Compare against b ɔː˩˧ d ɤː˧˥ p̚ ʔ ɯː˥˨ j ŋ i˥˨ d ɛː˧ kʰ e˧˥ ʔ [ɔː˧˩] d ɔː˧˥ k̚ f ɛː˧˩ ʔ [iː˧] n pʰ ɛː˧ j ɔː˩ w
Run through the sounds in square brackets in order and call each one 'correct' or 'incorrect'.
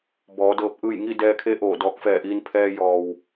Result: incorrect, correct

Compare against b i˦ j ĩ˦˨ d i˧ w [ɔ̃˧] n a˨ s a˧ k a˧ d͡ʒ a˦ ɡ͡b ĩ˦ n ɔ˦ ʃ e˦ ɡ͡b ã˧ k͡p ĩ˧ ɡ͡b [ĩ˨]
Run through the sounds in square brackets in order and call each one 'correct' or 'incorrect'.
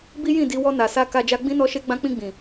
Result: incorrect, correct

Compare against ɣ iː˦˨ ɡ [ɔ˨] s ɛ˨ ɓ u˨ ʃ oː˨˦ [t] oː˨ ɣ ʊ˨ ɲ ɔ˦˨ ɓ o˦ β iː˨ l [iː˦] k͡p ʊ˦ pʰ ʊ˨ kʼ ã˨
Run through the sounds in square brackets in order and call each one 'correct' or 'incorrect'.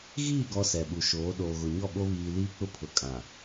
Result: incorrect, incorrect, correct

